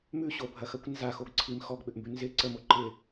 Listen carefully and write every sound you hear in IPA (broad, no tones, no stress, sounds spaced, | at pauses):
m ʉ ɕ o bʱ ɐ x ɐ kʷ n z a x o ɡ ǀʰ i m x ɔ ɡ ɓ ʏ ʔ m b ʉ n z ɪ ǀ ə m o ǃ ɪ